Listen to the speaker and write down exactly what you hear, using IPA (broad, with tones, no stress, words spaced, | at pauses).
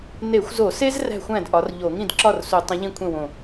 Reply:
ne˧˩˧xʷzo˧˩˧se˦z ræ̤˥˩xʷæ̃˥˩d ʔɒ˨˥r ʎo˧˩˧ŋĩ˥˩dǁɒ˥˩r su˧˩˧tˤĩ˨˥ ʎĩ˥˩ kʷʰẽ˥˩wõ˧˩